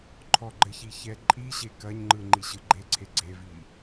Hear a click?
yes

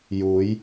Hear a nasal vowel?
no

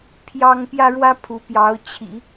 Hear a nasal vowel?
no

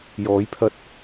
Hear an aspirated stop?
yes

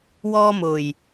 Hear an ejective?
no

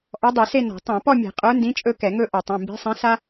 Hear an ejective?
yes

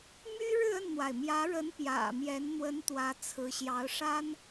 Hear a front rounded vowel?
yes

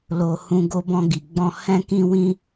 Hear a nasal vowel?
yes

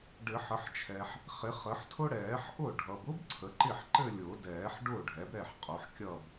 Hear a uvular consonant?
yes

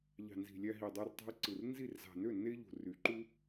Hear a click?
yes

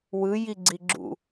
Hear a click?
yes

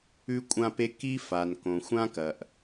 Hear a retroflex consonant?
no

